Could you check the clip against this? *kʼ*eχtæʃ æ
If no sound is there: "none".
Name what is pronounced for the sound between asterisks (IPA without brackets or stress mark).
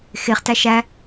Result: x